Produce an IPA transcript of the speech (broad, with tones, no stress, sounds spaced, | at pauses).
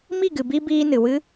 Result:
m i˦˨ ɡ ɨ˨ b i˧ b iː˧ n ɨ˨ w ɨ˦